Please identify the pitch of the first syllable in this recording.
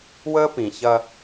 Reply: high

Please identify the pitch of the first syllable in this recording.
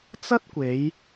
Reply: high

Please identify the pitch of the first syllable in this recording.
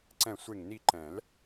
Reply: falling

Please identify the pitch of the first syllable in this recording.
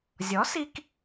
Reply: rising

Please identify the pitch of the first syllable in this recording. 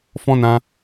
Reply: high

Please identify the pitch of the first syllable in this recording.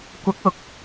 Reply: rising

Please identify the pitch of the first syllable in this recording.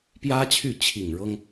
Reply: high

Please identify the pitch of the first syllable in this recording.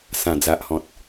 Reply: low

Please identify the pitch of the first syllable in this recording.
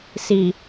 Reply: low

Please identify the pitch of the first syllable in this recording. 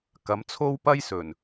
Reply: rising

